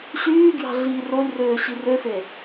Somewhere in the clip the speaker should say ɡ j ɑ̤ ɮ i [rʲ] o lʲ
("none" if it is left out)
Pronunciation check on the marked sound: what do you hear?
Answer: r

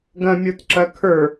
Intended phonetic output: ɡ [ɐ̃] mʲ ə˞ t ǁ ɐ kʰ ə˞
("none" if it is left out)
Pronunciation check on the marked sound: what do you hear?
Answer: ɐ̃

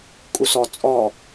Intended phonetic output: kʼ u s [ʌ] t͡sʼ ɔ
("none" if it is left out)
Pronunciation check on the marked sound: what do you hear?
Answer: ɔ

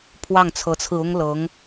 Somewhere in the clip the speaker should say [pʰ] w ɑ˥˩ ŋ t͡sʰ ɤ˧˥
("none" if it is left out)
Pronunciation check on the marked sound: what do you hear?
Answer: pʰ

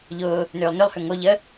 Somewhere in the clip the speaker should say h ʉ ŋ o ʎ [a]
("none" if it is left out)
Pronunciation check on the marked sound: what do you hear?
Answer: ə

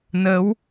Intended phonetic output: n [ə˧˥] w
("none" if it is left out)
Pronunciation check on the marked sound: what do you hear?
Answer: ə˧˥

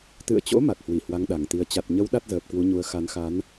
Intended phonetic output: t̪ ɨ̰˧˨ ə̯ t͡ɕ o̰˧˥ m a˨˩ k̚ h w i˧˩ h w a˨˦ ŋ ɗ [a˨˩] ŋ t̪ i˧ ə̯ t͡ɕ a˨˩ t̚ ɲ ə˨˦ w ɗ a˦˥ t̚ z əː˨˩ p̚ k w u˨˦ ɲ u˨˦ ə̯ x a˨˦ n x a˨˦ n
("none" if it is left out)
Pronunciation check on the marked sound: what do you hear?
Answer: a˨˩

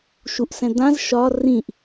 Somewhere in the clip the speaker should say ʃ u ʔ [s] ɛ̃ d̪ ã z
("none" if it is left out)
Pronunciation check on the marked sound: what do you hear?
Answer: s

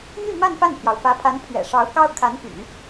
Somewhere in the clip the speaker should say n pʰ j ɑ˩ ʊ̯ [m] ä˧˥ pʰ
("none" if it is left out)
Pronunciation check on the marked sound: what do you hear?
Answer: f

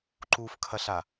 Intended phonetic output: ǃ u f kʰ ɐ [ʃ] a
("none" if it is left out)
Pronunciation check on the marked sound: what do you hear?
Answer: ɬ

